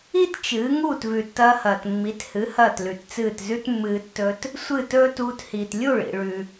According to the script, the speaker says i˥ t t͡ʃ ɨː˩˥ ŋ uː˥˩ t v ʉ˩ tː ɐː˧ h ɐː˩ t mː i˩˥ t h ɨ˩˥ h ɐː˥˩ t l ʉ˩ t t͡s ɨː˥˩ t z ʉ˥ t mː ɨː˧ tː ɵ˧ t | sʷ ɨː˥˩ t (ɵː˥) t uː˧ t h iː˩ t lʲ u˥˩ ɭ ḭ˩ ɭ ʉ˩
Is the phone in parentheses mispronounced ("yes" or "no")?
no